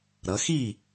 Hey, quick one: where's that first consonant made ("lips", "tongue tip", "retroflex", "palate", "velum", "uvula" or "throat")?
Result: tongue tip